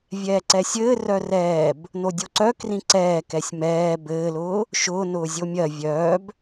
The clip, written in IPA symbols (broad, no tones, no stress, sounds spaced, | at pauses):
vʲ ɛː ǀ ɛ sʲ ɘː r œ r ɛː b | n o dʲ o ǀ œ k r ĩ ǀ ɛː k ɛ sʲ m ɛː b ɘː l ʊː | ʃ ʊː n ʊː zʲ o mʲ ɜ vʲ œː b